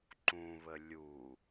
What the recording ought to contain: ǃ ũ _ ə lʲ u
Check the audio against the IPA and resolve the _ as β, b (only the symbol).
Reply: β